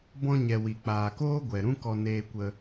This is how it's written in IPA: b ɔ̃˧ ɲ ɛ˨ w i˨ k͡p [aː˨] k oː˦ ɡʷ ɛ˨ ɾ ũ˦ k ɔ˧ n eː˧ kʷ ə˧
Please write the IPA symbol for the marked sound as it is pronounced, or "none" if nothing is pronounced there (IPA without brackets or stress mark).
aː˨